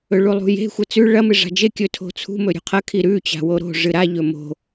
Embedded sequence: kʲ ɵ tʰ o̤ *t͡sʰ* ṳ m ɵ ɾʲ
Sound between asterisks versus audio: correct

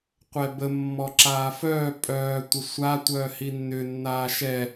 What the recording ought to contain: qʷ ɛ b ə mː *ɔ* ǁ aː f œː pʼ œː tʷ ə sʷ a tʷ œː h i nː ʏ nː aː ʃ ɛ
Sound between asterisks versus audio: correct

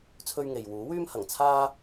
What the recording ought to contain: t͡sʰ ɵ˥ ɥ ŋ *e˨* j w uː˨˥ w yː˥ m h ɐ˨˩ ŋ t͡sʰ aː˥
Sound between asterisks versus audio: correct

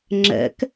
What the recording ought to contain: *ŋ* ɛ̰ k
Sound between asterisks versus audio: incorrect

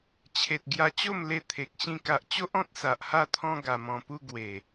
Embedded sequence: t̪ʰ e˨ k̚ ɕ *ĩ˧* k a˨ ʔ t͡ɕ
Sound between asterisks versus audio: correct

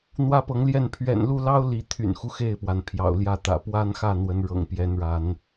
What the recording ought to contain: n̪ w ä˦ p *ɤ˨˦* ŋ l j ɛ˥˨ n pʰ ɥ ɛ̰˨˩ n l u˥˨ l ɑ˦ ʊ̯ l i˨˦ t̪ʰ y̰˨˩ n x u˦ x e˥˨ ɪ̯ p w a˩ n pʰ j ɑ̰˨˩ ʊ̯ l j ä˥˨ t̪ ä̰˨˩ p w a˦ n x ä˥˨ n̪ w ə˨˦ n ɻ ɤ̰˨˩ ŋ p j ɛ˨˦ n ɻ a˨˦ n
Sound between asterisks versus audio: correct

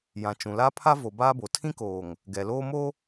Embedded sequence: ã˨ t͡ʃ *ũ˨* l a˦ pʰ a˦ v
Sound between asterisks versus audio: correct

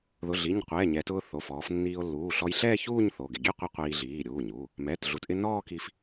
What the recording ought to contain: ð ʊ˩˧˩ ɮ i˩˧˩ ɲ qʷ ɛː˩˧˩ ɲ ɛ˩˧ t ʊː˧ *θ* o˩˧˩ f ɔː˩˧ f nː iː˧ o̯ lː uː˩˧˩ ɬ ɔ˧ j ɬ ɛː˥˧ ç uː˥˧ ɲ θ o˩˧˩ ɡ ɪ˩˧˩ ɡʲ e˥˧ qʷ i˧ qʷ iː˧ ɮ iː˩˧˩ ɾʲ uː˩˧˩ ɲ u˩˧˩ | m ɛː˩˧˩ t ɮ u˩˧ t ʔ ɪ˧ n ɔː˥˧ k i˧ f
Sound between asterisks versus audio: correct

